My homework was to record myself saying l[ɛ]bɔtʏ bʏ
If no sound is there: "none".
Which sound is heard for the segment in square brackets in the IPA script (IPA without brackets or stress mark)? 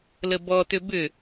ə